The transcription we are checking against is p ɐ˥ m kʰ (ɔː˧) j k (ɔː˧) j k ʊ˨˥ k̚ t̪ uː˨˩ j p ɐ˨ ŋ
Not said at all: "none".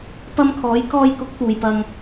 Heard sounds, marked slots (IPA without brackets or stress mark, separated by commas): ɔː˨˥, ɔː˧